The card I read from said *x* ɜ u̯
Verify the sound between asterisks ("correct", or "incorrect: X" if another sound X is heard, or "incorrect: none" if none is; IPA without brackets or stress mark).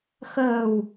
correct